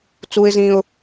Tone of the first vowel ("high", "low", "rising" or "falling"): high